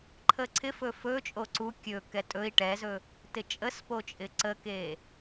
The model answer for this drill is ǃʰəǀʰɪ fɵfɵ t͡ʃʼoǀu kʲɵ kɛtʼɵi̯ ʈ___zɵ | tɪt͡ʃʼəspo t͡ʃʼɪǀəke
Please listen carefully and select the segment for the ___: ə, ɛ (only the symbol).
ɛ